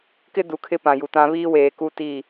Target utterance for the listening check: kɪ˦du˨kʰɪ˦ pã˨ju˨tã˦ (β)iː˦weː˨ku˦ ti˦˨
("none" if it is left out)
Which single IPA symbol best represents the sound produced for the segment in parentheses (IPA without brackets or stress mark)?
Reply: β